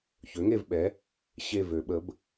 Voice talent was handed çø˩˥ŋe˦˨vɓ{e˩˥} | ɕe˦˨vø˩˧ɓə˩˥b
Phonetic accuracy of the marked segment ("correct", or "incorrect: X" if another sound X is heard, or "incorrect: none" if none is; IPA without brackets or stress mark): incorrect: ɛ˩˥